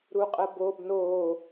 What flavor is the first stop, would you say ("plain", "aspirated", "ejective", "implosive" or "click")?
ejective